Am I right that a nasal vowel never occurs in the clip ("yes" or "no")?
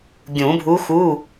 no